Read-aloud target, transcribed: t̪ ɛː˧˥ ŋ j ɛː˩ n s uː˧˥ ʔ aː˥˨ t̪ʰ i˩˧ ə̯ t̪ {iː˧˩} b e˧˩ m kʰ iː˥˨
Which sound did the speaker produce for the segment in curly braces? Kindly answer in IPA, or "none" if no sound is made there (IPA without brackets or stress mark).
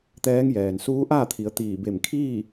iː˧˩